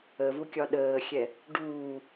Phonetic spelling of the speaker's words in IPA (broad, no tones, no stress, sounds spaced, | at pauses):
ə v u kʲ ɒ ɗ əː xʲ ɛ | ɖ uː